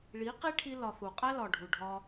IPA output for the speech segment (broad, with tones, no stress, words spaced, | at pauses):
ɭi˨˦qi˦ʈʰi˧lɒ˨θ u˨qʼæ˦lɒ˨ɖʱu˨ ɖʱɒ˦